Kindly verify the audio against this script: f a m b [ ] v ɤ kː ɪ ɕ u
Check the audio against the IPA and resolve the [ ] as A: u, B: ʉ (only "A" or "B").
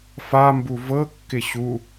A